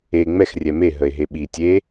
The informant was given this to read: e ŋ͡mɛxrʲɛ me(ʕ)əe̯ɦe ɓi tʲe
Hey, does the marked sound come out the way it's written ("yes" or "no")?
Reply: no